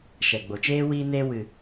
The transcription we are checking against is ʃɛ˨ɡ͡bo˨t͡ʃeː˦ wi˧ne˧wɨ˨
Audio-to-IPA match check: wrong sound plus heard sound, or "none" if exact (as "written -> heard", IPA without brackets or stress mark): none